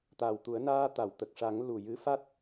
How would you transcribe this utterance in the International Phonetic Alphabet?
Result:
t̪ aː˨˩ w t̪ u˨˩˦ ə̯ n aː˧ t̪ a˨˩˨ w t̪ ə˨˩ k̚ ʂ a˨˩˦ ŋ l u˨˩ j ɨ˧˥ f a˦˥ t̚

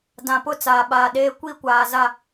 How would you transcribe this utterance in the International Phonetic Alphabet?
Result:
d ã˨ p ʊ˦ t͡s aː˨ ɓ aː˨ ɗ eː˦ kʷ i˦˨ kʷ aː˨ z a˦˨

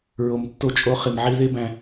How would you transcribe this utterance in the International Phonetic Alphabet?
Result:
ɹ o˨ m tː o˧ t͡ʃʼ o˧ χ i˨ m ʕ i˧ ð e˦ b æ̃˧

